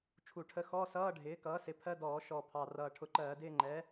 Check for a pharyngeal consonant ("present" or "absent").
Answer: absent